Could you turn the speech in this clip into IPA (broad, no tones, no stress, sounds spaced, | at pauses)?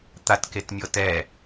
t̪ a t k e t mʲ ɤ t ɛ